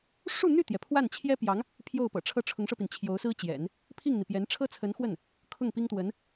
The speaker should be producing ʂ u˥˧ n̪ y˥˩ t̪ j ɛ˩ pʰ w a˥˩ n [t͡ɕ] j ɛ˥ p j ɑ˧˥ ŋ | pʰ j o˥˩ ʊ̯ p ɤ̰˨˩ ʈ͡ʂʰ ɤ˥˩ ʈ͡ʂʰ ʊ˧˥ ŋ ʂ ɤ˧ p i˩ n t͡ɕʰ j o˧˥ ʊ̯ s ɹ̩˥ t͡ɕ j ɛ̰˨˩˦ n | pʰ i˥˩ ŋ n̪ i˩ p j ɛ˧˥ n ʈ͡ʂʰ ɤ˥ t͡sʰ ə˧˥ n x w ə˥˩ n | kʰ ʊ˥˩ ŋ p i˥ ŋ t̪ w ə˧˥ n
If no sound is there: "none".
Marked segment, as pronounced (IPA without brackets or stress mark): t͡ɕʰ